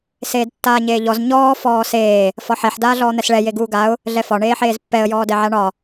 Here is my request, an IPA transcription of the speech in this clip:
s eː d tː aː ɲ eː ʎ ɔ z ɲ ɔː f ɔː s eː | f ɒ ħ ɛ ħ d aː ɮ ɔː n̪ ɛ s ɭ ɛ j e ɡ uː ɡ a ʊ̯ | ɮ ɛ f ɒ ɳ eː ħ eː z pː ɛ ə̯ j ɔː d ɛ ʕ a ɳ ɒ

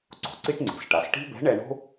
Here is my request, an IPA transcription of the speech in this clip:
ǀ o̤˩ ǀ i˥ ʈ ŋ͡ǀ i̤˩˧ s ʈ a˩˧ s ʈ i̤˥ b ɛ̤˧˥ ɳ ɛ˧ ɳ o̤˥

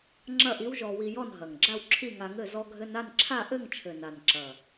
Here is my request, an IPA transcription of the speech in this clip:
ŋ͡ǁ ɐ˥˨ ʔ i˧˥ w ʒ ɔ˧ w i˧ j ɔ˥˨ n ɦ ɐ˨˩ ŋ ɡ͡ǁ a˥˨ w ǁʰ i˥˨ ŋ a˧ ŋ ɘ˥˨ z ɔ˧ ɡʱ ɘ˧ n a˥˨ n ǁʰ a˥˨ ʔ ɘ˥˨ ŋ t͡ʃʰ ɘ˨˩ n a˨˩ n ǁ ɐ˨˩

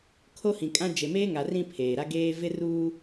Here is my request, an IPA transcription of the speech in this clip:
kʰ o˦ h ĩ˨ kʼ ã˦ d͡ʒ e˨ m eː˦ ŋ a˨ r ĩ˦˨ pʰ eː˨ ɾ a˦ ɡ eː˦ v ɪ˦ r uː˦

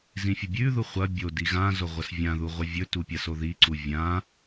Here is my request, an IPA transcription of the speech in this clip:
z ĩ fʲ ɐ bʲ ʉ ð u χʷ ɐ bʲ o d i ɣ ã z o ʁʷ ɐ s vʲ ã ð u ʁʷ ɐ vʲ ɵ t u pʲ a s o ð i ǀ u vʲ ã

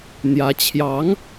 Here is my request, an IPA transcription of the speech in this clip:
n̪ j ä˧˥ t͡ɕʰ j ɑ˧˥ ŋ

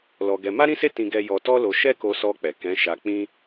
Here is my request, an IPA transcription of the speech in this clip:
l ɔ˧ ɡ ɛ˧ m a˦ ɾ ĩ˦ s e˦ t ĩ˦ ɡ ɛ˦ j ɔ˧ t ɔ˦ l o˧ ʃ ɛ˦ k o˧ s ɔ˧ k͡p ɛ˨ k ɛ̃˨˦ ʃ a˧ k͡p ĩ˦

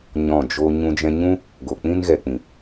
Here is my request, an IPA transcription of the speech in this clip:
ɲ ɔ̃˦˨ d͡ʒ o˦ ɲ ũ˧ d͡ʒ ɛ̃˧ ɲ ũ˦ | ɡ o˨ k͡p ĩ˦ n ɣ ɛ˨ k͡p ĩ˨

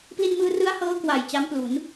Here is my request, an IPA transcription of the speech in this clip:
p l i˧ n m ɯː˧ r ɯ˦˥ a̯ h ɤː˦˥ k w a˨˩ j t͡ɕ a˦˥ m p l u˩˦ n

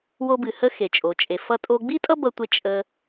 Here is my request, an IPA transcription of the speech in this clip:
w o˧ b ɨ˩ h ə˧ x e˩ t͡ʃʼ o˩ t͡ʃʼ e˩ f ʌ˧ tʼ o˧ ɡ͡b i˥ tʼ ʌ˥ b ʌ˧ tʷ e˧ t͡ʃʼ ə˧

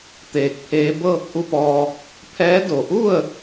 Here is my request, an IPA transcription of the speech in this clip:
t̪ eː˧˩ k̚ pʰ eː˧˥ b ɤː˥˨ k̚ ʔ u˥˨ p ɔː˧ | pʰ ɛː˧˥ d o˧˩ ʔ u˥˨ ə̯

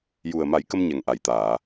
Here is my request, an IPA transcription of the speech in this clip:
j u˨˩ ə̯ m a˨˩˦ j k ə˧ m ɲ ɛ˨˩ ŋ ʔ a˨˩˨ j t̪ aː˨˩˨

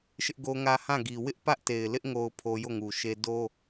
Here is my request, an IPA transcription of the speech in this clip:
ʃ ɪ˦ ʔ ɡ o˦ ŋ ä˦ h ã˦˨ ɡ i˨ w ɪ˦ ʔ p ä˦ ʔ t e˨ ɪ̯ l ɪ˦ ʔ ŋ o˦ ʊ̯ pʰ o˦ j o˦˨ ŋ u˨ ʃ e˦ d o˦

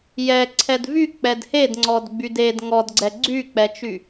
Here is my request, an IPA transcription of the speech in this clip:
j ɛ ǀʰ ɛ d v y k͡p ɛ d h e d ŋ͡ǀ ɔ d ɡ͡b y d e d ŋ ɔ d ɡ͡ǀ ɛ ɡ͡ǀ y k͡p ɛ t͡ʃ y

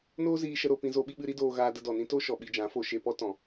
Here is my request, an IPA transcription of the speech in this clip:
n oː˦ z iː˧ ʃ ə˧ ɾ o˧ p ĩ˧ z o˧ ɓ i˧ ɓ ɨ˧ ɾ i˦ d oː˧ ɣ aː˧ d ə˧ d ɔ˨ n ĩ˦ t o˦ ʃ ɔ˨ ɓ i˧ d͡ʒ ã˨˦ f o˧ ʃ e˧ p ɔ˦ t ɔ̃˨

